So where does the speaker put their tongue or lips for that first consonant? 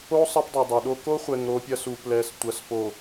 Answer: tongue tip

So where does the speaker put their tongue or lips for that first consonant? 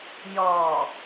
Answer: palate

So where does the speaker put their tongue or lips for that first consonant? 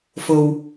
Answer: lips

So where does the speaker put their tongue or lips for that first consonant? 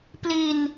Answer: lips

